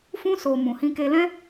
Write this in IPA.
f ũ˧ s o˨ m ũ˨ h ĩ˧ k e˧ l ɛ̃˦

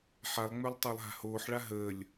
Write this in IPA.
ħ a lˠ ŋ͡m ø lˠ tˤ əː lˠ ɦ a̤ h oː ħ ɭ a ɦ əː lʲ

